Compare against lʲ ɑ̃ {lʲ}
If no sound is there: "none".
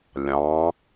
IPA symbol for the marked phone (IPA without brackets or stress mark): none